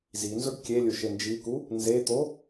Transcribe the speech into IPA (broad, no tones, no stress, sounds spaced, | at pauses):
z i n z ʊ ɖ kʲ e lʲ ʊ ʃ e n d͡ʒ i k u | n z e t̪ o